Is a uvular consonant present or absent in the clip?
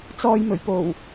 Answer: absent